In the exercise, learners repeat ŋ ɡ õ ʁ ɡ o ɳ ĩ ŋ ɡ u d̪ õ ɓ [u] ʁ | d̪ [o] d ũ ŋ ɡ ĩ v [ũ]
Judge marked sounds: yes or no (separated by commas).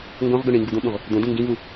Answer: no, no, no